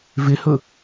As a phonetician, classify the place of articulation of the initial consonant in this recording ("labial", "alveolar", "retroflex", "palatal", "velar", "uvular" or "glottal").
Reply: labial